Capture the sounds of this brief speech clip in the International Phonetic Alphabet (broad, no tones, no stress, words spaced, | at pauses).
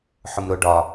ħʊmɾʊ ɖɒ